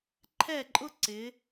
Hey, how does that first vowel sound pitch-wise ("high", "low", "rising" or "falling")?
falling